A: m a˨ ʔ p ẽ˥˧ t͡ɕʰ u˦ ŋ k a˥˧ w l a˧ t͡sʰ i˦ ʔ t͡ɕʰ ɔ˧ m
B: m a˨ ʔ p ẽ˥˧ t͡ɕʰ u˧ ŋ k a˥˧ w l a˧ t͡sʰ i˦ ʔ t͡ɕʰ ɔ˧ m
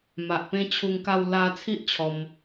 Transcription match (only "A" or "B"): B